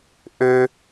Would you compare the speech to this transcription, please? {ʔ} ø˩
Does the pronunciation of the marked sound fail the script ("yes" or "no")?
no